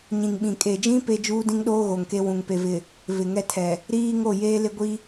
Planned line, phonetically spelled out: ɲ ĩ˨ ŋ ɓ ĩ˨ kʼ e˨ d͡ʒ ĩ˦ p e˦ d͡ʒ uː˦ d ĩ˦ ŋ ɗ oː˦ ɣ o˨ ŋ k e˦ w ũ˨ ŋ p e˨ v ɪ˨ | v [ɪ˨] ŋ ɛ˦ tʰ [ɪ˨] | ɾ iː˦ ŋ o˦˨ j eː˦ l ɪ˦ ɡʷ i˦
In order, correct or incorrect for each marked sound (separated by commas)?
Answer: correct, incorrect